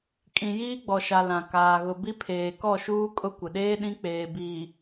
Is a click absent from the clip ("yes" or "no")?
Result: yes